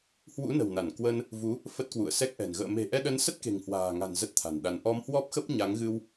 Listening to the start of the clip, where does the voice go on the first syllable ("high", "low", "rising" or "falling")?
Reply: rising